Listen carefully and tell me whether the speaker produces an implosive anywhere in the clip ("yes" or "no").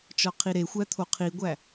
no